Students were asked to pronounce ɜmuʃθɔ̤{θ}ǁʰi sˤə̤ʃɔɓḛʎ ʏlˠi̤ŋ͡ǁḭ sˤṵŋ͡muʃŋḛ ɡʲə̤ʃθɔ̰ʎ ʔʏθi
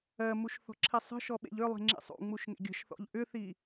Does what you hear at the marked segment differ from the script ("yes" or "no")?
yes